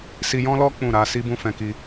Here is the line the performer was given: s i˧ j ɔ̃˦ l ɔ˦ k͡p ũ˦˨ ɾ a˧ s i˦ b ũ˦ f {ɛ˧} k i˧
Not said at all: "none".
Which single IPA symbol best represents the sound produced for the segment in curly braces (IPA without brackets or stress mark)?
ɛ̃˧